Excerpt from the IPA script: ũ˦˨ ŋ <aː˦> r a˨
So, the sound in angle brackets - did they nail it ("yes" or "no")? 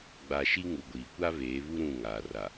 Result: no